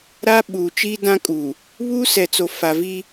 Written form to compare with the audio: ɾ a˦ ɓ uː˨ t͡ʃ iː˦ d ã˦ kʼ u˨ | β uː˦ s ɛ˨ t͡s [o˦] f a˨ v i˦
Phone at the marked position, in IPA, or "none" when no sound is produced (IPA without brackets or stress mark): o˨